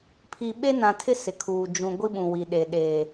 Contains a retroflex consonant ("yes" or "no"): no